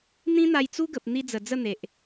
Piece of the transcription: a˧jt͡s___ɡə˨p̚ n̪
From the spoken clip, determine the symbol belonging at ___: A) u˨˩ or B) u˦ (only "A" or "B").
B